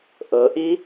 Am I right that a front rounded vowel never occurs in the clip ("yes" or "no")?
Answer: yes